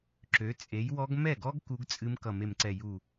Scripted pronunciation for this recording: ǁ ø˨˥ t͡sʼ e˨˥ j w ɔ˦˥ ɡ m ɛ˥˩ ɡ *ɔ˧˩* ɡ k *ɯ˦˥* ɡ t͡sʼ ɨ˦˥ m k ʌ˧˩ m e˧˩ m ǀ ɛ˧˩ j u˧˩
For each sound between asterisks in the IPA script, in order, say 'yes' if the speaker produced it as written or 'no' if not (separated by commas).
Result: no, no